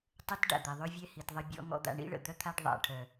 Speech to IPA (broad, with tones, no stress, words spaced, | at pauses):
tˤə˦t ɖa̰˨d̪ɛ˨ðˤø˦vʲɛ˦ hi˨tðˤə˧ bʲɔ̰˦ ŋɔ̰˧d̪a̰˨ɳḭ˦ɭə̰˨ d̪œ˦t̪ʰa˦ɖ ðˤa̰˨ʈʰœ˨